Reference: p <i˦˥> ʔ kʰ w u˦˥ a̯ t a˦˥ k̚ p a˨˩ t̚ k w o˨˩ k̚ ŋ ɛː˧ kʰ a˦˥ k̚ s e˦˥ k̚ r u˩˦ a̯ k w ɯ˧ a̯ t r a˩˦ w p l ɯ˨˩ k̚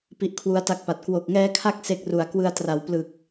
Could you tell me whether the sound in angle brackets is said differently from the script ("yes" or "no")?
no